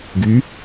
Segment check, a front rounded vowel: present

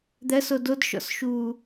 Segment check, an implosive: absent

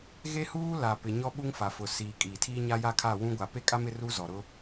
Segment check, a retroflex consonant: absent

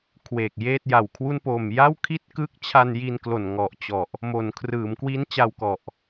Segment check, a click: absent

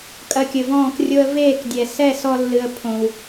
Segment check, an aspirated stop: present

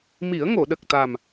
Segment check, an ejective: absent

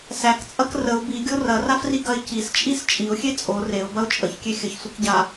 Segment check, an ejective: present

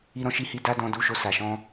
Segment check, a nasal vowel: present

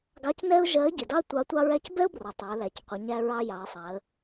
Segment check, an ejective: absent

